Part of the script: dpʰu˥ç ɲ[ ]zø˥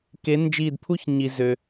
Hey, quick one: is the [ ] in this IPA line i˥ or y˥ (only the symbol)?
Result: i˥